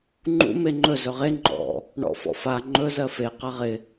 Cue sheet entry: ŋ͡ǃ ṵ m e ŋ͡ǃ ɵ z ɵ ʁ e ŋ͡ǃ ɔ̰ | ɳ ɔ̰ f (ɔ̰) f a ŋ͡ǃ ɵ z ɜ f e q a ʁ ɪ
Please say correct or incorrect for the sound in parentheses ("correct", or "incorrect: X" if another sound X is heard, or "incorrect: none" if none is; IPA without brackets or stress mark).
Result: correct